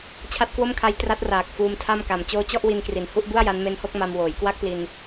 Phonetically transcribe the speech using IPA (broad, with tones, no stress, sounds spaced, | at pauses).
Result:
t͡ɕʰ a˦˥ t̚ k w o˥˩ m kʰ a˦˥ j t r a˦˥ t̚ r aː˨˩ k̚ f uː˧ m tʰ a˥˩ m k a˨˩ m t͡ɕ oː˧ t͡ɕ ɔ˥˩ ʔ w i˧ n k r i˩˦ n h u˦˥ ʔ b u˥˩ a̯ j a˦˥ n m e˦˥ n h o˥˩ k̚ m a˧ m w oː˩˦ j k w a˥˩ k̚ p l i˧ n